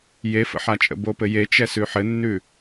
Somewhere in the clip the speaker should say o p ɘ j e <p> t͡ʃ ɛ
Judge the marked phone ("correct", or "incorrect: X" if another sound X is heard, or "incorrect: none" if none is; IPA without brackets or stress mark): incorrect: none